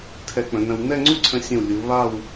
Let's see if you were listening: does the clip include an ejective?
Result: no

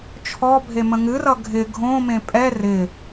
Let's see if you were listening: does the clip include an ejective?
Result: yes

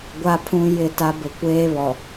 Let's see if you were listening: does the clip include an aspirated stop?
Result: yes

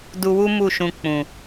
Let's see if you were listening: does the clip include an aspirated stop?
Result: no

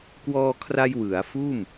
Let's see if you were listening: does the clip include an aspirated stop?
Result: yes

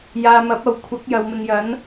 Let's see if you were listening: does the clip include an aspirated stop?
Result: yes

